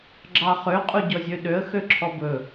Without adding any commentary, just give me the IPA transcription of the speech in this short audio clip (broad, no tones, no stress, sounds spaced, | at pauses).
ɡ͡ǁ ɑ χ ø qʼ u ɟ ɔ zʲ ø ɗ ø ə̯ x ø ǁʰ ɔ b ɵ